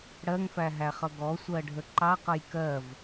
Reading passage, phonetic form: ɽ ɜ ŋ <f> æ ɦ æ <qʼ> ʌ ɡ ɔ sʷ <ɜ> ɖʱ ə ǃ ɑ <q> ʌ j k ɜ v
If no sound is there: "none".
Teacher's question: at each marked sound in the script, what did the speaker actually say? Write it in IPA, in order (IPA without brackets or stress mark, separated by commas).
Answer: f, χ, ɜ, q